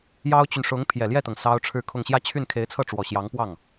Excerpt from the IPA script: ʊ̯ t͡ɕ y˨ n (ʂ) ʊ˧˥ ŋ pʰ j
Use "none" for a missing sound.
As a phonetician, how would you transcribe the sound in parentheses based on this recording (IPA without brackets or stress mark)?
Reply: ʂ